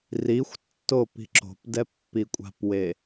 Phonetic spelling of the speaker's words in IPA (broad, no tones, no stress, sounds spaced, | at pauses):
r i xʷ tː o p i̤ ǁ o̤ p d ɛ pː i kʷʼ a̤ p w e